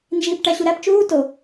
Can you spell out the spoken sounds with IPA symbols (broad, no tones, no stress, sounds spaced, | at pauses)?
n d͡ʒ iː p ʈ æ ɕ u ɾ æ p t͡ʃ uː t o